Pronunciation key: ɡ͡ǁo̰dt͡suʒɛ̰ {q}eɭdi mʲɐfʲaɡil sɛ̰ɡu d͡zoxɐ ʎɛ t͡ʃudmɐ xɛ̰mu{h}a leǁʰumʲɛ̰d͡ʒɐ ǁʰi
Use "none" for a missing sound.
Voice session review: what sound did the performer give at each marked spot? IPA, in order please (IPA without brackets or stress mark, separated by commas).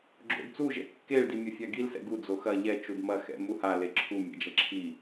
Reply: kː, h